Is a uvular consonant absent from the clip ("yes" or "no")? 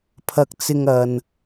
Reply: yes